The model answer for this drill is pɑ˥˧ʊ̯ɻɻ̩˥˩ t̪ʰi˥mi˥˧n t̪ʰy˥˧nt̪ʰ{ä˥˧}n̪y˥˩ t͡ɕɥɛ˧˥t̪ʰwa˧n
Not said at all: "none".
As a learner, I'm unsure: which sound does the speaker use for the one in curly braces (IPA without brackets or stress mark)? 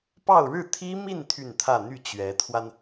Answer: ä˥˧